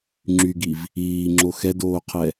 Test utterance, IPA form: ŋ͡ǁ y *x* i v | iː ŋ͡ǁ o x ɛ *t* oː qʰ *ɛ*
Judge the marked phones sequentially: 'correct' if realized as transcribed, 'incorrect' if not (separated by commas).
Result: incorrect, incorrect, correct